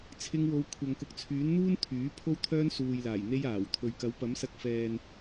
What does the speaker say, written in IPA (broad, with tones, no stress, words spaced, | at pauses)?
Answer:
t͡sʰɪ˧ŋwo˨˧w kʷʰɐ˨ŋkʊ˨˥k̚t͡sʰyː˨˥nn̪uː˥n t̪ʰyː˨˥ pʰo˥wt̪ʰœː˥n suː˨jlaː˨˩jn̪e˧j aː˨˩wt̪ʰɵ˨ɥkɐ˨˥w pɐ˨˥msɐ˧k̚fɛː˨n